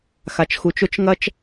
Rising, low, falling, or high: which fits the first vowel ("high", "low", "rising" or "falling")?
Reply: low